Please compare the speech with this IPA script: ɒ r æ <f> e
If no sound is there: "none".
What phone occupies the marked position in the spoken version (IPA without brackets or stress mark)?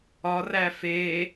f